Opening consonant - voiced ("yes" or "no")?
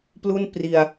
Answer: no